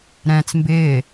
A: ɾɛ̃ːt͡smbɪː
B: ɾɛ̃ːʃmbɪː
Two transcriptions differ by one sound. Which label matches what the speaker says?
A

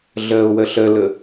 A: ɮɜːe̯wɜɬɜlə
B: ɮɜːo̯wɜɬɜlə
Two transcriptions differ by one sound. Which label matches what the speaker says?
B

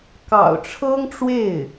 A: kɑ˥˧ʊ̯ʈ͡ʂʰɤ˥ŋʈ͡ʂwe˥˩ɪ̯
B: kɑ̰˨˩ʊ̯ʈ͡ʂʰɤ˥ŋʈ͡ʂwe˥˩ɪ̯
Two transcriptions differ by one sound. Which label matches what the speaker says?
B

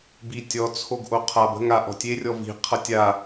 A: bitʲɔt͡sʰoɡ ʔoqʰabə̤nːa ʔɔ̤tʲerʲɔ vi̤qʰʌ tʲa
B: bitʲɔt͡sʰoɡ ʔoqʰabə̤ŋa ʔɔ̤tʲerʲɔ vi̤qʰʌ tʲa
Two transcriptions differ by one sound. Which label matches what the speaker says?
B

